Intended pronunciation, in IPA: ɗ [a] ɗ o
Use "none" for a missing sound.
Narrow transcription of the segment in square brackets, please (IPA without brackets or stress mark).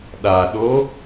a